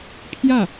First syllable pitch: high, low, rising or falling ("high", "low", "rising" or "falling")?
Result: falling